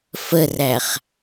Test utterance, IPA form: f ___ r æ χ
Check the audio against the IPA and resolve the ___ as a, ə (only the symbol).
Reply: ə